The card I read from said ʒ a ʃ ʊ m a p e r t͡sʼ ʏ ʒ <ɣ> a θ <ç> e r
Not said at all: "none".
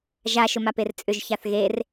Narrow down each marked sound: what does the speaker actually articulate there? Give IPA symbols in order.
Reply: ç, ɣ

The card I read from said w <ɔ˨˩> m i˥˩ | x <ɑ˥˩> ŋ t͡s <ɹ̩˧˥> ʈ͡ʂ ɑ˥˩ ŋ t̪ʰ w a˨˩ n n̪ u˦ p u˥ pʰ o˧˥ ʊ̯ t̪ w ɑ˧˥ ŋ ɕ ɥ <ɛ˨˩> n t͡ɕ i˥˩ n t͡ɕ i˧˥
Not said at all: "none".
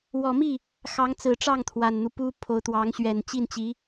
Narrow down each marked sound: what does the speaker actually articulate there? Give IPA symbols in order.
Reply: ɔ˨˩, ɑ˧˥, ɹ̩˨˩, ɛ˨˩

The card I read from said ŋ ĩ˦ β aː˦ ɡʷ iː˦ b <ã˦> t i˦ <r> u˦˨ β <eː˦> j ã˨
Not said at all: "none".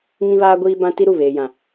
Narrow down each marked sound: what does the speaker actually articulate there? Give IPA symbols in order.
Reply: ã˦, ɾ, eː˨

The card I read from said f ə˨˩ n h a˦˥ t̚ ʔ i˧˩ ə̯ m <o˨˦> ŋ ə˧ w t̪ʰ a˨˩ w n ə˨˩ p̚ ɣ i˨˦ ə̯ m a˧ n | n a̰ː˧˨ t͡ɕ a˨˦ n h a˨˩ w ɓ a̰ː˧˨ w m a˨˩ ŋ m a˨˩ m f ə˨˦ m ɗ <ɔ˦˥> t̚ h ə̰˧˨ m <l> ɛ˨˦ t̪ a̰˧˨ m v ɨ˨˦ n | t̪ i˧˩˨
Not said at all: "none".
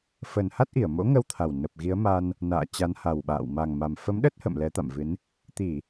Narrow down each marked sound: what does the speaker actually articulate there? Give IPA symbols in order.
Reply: o̰˧˥, ə˦˥, l

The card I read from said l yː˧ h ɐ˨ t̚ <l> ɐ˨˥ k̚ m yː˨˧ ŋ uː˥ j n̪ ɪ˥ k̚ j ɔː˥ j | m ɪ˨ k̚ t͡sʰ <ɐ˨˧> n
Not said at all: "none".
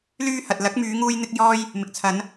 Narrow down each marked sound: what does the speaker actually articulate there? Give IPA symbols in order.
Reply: l, ɐ˨˧

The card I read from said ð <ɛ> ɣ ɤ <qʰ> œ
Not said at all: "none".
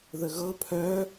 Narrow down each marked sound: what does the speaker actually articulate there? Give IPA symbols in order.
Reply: ə, pʰ

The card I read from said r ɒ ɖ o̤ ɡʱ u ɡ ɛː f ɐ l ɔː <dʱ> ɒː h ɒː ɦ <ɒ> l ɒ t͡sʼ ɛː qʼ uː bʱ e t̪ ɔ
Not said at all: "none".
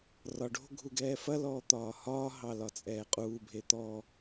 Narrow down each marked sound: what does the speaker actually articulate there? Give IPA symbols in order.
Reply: t̪, ɑ

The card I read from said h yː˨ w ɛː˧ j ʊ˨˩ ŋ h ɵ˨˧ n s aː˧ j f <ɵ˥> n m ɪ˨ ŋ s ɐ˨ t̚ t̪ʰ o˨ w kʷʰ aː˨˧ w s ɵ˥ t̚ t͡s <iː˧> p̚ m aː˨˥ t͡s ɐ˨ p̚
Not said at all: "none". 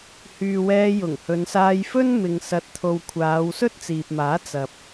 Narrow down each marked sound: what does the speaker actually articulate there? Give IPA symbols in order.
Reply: ɵ˥, iː˨

